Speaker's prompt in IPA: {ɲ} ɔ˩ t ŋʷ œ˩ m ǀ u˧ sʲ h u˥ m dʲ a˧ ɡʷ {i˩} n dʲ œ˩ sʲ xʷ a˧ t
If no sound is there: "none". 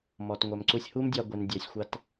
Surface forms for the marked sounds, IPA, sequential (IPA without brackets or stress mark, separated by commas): m, i˩